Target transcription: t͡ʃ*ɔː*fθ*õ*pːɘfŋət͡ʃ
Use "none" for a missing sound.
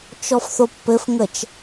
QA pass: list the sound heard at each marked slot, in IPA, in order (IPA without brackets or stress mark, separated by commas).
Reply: ɔ, o